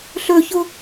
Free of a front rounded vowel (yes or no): no